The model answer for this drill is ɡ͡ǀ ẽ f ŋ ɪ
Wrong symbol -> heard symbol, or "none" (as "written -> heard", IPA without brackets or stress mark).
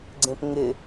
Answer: f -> p